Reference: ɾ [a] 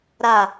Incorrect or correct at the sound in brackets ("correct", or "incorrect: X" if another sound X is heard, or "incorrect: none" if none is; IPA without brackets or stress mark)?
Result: correct